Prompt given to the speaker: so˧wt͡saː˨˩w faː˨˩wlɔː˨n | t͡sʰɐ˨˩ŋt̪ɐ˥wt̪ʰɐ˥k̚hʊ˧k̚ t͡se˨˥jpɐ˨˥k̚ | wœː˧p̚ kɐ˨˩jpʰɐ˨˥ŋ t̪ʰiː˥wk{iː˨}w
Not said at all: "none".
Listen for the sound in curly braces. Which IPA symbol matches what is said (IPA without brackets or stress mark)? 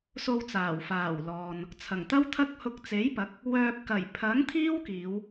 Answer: iː˨˧